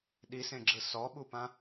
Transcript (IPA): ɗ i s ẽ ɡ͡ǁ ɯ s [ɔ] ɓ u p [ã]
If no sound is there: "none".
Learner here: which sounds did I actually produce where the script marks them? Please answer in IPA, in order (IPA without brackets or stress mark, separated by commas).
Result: ɔ, ã